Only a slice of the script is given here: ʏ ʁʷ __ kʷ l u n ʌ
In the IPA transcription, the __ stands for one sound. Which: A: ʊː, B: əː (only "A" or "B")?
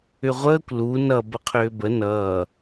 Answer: B